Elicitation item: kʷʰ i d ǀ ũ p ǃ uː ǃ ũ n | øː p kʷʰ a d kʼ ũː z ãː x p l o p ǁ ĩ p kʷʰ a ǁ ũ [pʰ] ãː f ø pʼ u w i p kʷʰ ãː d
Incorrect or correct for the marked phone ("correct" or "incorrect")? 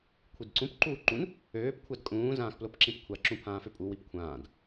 correct